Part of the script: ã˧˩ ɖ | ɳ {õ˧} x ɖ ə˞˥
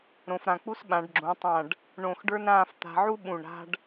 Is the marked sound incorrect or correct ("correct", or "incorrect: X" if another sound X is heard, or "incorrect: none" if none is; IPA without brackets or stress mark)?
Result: incorrect: õ˧˩